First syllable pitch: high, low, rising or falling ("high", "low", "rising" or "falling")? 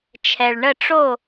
low